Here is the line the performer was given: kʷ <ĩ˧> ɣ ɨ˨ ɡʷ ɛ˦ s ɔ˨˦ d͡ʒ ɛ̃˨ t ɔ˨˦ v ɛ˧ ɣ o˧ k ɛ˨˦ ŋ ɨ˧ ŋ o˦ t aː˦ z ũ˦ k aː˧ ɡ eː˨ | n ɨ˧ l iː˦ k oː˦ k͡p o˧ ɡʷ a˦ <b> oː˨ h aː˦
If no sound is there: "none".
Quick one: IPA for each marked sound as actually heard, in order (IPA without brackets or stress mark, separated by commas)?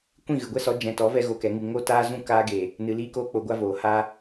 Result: ĩ˦˨, v